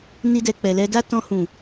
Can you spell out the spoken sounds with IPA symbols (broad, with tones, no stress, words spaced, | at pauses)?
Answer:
ni˧dɛ˨ k͡pɛ˨lɛ˧da˦ tɔ̃˧hũ˨